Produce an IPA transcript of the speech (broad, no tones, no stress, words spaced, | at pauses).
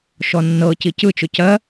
ʃɔnːɤci cɯt͡ʃʊ cɜ